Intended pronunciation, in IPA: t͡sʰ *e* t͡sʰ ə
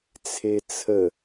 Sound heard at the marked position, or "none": e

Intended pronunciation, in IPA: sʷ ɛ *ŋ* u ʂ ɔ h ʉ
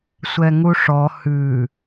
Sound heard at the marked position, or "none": ŋ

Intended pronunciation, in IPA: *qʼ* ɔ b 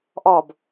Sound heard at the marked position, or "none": ʔ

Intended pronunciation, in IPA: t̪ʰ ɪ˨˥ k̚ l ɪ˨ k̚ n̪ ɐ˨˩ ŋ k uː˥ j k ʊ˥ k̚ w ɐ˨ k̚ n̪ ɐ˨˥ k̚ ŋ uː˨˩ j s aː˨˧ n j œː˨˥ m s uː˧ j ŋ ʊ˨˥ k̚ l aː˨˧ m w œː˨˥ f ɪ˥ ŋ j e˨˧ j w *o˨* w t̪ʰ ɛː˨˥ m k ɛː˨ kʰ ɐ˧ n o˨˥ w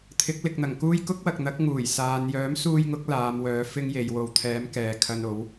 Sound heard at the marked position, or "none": o˨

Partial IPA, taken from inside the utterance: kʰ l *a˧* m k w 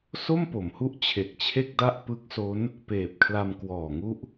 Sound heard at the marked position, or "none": a˧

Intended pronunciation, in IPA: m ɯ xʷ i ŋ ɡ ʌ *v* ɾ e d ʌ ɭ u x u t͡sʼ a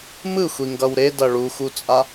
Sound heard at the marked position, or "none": w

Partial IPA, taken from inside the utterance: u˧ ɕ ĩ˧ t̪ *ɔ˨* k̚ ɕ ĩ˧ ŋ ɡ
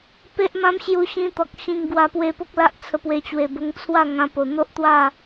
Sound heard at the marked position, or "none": ɔ˨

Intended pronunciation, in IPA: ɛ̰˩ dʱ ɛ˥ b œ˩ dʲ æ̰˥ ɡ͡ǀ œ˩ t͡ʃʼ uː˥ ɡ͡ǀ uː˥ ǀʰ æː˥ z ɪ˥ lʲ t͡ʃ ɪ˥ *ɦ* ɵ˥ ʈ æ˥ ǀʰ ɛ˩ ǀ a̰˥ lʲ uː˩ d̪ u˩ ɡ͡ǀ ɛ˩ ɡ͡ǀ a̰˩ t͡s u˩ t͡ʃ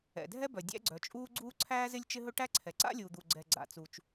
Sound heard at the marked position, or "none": ɦ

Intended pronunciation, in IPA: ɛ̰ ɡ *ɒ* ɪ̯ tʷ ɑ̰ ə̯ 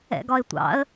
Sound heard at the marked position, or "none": ɒ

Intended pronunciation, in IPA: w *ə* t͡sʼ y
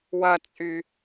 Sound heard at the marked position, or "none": ɐ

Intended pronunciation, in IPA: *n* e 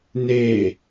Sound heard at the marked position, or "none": n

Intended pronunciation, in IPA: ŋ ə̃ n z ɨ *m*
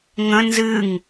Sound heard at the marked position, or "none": ŋ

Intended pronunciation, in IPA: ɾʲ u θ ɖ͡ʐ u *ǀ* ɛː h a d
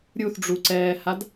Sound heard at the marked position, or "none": ǀ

